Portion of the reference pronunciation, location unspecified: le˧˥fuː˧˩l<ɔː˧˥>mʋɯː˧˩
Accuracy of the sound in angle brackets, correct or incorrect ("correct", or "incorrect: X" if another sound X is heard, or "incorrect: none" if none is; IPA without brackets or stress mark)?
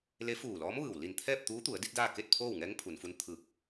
correct